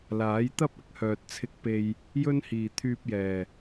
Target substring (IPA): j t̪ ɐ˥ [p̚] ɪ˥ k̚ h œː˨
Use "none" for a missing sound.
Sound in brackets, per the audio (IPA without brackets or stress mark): p̚